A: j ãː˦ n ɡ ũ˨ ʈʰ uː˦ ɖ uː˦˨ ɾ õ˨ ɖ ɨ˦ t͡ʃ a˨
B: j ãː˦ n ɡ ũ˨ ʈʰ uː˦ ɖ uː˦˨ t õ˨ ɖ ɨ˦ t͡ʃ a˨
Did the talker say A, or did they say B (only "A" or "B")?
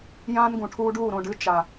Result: A